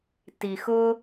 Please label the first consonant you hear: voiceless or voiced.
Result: voiceless